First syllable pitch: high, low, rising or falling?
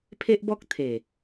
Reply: high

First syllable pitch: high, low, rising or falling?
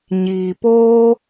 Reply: low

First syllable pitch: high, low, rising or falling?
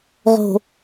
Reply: low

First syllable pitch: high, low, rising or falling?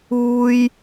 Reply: high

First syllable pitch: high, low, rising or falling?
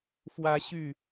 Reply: high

